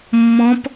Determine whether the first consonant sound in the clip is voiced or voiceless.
voiced